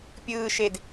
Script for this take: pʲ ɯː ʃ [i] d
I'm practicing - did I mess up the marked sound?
yes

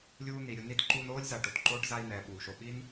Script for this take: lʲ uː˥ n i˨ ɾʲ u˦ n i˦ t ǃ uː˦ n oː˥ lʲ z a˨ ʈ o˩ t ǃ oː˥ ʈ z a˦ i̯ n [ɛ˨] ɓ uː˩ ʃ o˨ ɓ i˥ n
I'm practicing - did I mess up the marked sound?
no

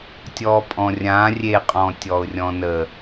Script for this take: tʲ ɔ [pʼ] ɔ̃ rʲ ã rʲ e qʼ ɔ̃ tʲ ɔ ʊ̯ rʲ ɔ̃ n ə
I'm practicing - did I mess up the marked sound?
no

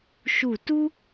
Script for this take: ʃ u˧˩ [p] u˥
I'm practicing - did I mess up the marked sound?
yes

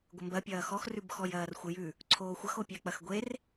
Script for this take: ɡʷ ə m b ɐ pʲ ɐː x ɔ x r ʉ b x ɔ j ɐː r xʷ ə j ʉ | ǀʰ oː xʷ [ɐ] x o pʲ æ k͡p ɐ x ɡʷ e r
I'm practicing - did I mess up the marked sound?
no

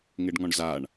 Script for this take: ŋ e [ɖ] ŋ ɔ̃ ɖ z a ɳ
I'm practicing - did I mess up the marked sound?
no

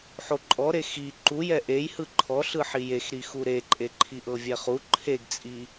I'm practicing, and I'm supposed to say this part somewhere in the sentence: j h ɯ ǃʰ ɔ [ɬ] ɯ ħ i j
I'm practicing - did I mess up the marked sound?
no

